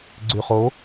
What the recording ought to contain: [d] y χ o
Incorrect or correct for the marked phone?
incorrect: ɡ͡ǀ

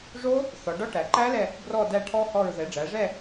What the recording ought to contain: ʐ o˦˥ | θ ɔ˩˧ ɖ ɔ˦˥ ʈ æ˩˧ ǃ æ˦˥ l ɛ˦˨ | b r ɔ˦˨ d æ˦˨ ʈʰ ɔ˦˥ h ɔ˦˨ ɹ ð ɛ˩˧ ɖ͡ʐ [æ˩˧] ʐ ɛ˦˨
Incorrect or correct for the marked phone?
correct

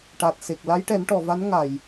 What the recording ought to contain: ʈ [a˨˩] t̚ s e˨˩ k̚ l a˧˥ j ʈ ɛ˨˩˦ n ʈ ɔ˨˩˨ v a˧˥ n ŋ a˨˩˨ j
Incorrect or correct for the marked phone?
correct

